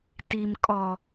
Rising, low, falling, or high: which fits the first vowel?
low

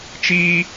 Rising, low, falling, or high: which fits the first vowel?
high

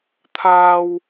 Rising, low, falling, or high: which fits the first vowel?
high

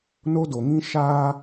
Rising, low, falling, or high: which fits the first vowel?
high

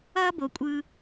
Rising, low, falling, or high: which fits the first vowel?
high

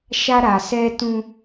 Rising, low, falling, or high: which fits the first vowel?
high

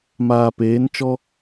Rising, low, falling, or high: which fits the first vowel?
low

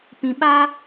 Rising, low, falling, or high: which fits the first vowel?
low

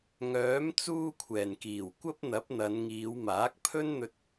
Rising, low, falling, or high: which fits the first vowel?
rising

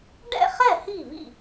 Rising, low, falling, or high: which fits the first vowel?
falling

